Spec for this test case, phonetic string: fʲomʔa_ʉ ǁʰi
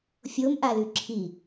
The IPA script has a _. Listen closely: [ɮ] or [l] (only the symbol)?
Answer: l